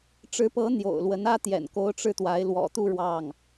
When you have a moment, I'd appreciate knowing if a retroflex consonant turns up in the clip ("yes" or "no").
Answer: yes